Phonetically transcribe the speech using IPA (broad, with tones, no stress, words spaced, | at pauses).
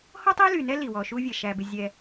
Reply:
hɔ˦tˤi˦ly˨nɛ˦ li˨wɔ˨ʃu˦vʲɛ˨ ʃæ˨bɪ˨ zʲɛ˦